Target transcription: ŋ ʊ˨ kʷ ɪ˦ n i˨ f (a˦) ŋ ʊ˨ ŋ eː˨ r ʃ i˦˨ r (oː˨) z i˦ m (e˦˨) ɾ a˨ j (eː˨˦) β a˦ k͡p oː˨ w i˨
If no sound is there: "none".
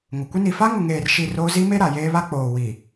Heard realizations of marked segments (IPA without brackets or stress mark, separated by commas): a˦, oː˦, e˦, eː˦